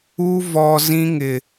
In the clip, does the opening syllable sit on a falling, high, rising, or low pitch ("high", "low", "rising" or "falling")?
high